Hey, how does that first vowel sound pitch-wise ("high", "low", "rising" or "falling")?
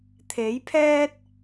rising